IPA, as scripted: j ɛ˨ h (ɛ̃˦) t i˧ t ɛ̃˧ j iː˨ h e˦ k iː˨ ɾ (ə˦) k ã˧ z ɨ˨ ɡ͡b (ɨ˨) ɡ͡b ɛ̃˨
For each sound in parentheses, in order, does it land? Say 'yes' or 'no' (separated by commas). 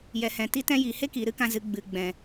no, no, yes